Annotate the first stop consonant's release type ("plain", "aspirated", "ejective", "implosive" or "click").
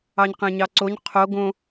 plain